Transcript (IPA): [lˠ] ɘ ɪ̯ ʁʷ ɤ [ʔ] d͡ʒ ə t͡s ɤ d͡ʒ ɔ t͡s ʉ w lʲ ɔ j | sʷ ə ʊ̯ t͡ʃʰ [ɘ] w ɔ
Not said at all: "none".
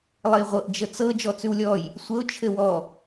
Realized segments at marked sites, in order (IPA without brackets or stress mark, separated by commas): lˠ, ʔ, ɘ